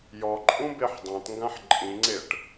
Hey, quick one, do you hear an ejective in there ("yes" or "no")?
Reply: yes